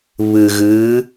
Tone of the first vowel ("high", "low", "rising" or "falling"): low